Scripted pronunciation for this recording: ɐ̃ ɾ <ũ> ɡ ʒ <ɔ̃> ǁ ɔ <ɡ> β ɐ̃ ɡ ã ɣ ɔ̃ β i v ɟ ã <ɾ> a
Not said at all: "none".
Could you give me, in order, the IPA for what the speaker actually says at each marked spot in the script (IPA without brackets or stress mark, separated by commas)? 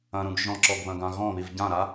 ũ, ɔ̃, ɡ, ɾ